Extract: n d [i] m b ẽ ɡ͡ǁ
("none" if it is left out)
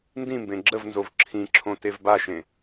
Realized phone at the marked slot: ĩ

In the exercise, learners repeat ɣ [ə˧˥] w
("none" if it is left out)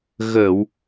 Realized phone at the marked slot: ə˨˩˨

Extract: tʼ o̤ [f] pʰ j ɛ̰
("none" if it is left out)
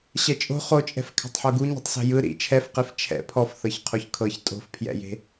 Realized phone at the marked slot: f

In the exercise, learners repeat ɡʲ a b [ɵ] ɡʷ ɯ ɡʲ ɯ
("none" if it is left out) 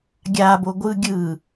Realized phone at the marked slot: o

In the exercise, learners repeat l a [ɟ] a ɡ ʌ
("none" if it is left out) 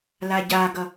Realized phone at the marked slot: ɟ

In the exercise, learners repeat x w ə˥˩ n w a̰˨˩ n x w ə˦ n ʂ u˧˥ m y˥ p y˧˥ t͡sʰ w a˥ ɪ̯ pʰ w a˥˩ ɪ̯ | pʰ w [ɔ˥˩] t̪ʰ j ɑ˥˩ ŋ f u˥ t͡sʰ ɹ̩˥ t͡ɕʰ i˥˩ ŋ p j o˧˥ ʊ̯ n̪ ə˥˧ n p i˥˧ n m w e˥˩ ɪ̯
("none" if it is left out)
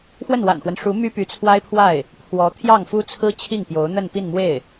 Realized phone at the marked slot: ɔ˧˥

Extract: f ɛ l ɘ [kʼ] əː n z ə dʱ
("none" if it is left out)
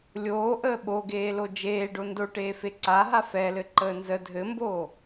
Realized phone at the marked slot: ǃ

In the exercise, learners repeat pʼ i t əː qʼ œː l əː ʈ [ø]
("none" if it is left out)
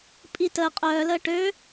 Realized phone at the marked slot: ø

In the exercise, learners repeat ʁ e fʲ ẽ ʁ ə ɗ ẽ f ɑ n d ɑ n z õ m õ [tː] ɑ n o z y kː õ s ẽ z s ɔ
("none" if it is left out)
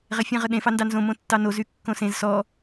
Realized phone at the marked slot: tː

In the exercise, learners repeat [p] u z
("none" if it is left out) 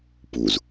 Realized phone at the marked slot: p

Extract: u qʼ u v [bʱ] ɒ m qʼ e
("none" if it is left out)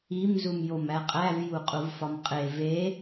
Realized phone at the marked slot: f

